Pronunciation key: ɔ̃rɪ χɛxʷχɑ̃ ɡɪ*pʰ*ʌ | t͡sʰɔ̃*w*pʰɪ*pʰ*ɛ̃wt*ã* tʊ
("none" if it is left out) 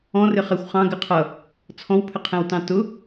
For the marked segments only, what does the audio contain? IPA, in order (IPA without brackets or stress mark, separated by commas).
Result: qʰ, w, qʰ, ɑ̃